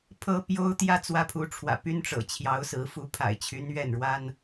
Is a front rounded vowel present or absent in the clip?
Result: present